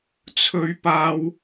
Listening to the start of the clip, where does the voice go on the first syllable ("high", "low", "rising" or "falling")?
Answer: high